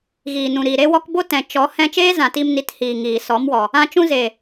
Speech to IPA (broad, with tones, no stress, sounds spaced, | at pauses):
ɣ iː˨ n ũ˨ ɾ iː˨ ɾ e˦ w ɔ˦ k b o˦ t ɛ̃˨ t͡ʃ ɔ˨˦ h ɛ̃˧ t͡ʃ eː˦ z ã˨ t i˧ m n i˨˦ t h iː˨ ŋ iː˨ s ɔ˨˦ m w ɔ˨ | ã˦ t͡ʃ ũ˦ z eː˨